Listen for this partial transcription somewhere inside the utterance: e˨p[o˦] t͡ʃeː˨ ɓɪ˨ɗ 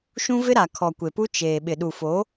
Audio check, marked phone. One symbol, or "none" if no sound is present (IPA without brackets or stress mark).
u˦